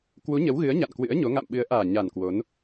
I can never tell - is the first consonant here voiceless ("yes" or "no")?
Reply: yes